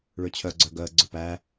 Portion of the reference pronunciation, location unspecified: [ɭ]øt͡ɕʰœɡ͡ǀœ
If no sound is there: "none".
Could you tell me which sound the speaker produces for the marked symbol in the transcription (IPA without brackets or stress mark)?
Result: ɭ